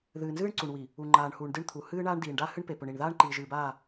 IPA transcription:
ðɨː˨nzɨː˦ɳǀu˨ɳwi˨ | u˨ŋ͡ǃaː˨ɳhuː˨ɳdɨ˦˨ɳ t̪ʰu˨hɨː˦ ɳaː˦ɳdiː˨ɳɖa˦ hɨ˦ɳpe˨pɵ˨ɳi˨ɳ ðaː˦ɳǃiː˨ʒɨː˨baː˦˨

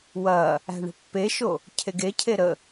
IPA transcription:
wɐ | æ̤ɳə̤pːeʃo | cʰeɡecʰe ɾə

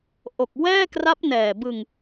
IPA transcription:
ʔo˨˩k̚wɛː˥˩kra˦˥p̚ nɛː˨˩bɯ˧ŋ

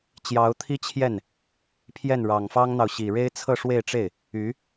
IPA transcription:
t͡ɕjɑ˧˥ʊ̯t̪ʰi˥t͡ɕʰjɛ˥˩n | pʰjɛ˥˩nɻɑ˨˩ŋ fɑ˥ŋn̪ɑ˨ʊ̯ ɕi˨˩ ɻe˥ɪ̯t͡sʰɤ˥˧ʂwe˥˧ɪ̯ʈ͡ʂe˥˩ɪ̯ | y˧˥

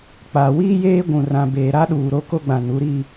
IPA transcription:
k͡pa˨ wiː˦jeː˦ɡʷũ˨rã˨ beː˨ɾa˦ɗuː˨ ɾo˦ko˦ɡ͡bã˨nu˨˦ ɾi˦

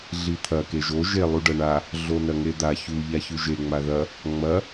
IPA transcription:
ɮit̪ʰɐ keʒo ʒe lˠuɖɐɳa | ɮonɐŋed̪a çu ʎaçʉʒe ŋ͡maðɐ | ŋ͡mɐ

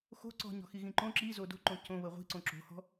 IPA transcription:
xo̤ ǀɔ̤ɲɔ̤xiɣĩ ǃõ ǁizo do̤ǃõ cõβɤ ʁʷi̤ǀõ ǁo̤hɔ̤

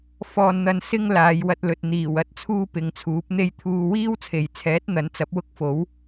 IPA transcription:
fɔː˨nn̪ɐ˨n sɪ˥ŋ laː˨˧jwɐ˧t̚lɵ˨t̚ n̪iː˨˩wɐ˧t̚ t͡sʰuː˥pɪ˨˧ŋt͡sʰuː˨˥p̚n̪e˥j t̪ʰuː˧ wiː˥wt͡sʰe˨jt͡sʰɛː˨˥t̚ n̪ɐ˨˥nt͡sɐ˨˥p̚wʊ˥k̚fo˨˥w

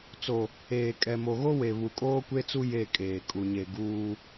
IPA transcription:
t͡so˨ | eː˨ kʼɛ˨mo˨ɣo˦we˨ βu˨kʼoː˦kʷe˦t͡su˦ je˦˨kʼeː˨ kʼu˨ɲe˨ ɡuː˦

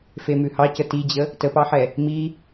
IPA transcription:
femʉhɑcə tid͡ʑə | təpɑħɛ | mi

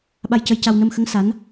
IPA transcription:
ɓa˧jcə˧jca˧w nə˧mxə˧˥ŋ sa˧˥n

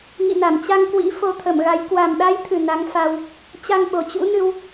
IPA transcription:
ŋḭ˧˨na˧˩m t͡ɕa˧ŋkwḭ˧˥ fo˧t̪ʰə˧˩mɣa˨˦j kwa˨˩mɗa˨˦jt̪ʰɨ˨˩ na˨˦ŋfa˧w | t͡ɕa˧ŋɓo˨˩t͡ɕṵ˧˥ nɨ˧w

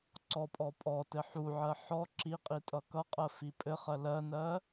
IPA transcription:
ǀɔpʼɔ pʼɔtɘ ħuʕɜ ħɔ ǁi qʼitʼʌkʌqʼɜ fipʼɘχɜ lɜnɜ

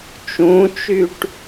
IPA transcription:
t͡ʃũt͡ʃyʈ

